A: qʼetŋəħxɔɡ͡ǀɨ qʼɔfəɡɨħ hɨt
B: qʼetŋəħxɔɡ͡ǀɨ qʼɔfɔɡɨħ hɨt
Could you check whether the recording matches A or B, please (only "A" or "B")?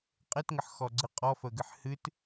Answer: A